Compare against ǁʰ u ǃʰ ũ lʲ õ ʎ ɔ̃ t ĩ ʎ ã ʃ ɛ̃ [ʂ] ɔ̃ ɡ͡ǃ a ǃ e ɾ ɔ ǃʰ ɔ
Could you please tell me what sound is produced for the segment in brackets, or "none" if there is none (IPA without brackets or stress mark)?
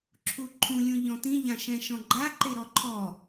ʃ